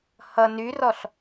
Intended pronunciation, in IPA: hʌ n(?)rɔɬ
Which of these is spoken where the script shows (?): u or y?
y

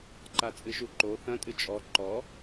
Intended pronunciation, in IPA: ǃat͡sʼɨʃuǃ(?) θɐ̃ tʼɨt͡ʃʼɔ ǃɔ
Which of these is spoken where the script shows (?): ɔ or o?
o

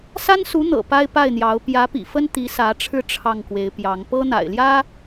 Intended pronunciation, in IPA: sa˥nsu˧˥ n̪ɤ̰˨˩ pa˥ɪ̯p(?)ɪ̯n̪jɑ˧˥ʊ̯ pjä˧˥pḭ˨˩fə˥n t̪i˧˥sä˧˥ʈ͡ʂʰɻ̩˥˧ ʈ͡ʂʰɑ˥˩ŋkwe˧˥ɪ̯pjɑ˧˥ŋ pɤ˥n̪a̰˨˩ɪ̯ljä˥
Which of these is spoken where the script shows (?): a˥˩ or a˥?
a˥˩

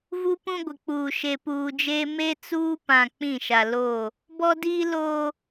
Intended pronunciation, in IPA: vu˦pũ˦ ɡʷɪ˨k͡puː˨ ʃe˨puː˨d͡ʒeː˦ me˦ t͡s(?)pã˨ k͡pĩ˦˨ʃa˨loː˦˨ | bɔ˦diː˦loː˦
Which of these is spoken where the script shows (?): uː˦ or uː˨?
uː˦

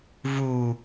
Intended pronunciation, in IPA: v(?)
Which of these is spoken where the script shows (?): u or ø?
u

